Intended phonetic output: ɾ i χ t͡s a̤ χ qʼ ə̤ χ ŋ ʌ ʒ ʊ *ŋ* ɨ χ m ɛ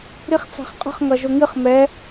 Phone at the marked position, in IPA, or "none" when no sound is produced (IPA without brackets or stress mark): ŋ